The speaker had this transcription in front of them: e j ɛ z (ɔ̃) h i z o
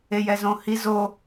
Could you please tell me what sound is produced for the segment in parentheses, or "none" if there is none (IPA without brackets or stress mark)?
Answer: õ